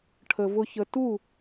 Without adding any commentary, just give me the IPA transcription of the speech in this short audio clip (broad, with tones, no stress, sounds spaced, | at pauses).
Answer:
ʈʰ ə˦ v ʊ˦ ç ə˦ t u˦˨